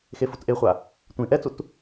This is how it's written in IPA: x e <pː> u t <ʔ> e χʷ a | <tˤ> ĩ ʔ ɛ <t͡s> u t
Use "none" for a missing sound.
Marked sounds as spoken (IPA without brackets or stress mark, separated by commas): f, ʔ, tʷ, t͡s